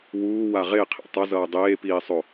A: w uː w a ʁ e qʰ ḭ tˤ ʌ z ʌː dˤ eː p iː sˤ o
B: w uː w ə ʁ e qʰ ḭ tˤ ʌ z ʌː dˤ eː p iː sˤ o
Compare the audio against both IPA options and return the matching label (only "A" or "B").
A